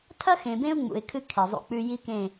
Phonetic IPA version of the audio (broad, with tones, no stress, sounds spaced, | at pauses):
tʰ ɐ˦ x ẽ˨ b ẽ˦ ʊ̯ ŋ͡m ṵ˨ ɪ̯ kʰ ɨ˦ kʰ i˨ zˤ ṵ˦ k͡p ʉ˦ j i˦ k ẽ˦˨